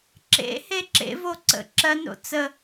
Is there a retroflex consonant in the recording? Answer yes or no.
no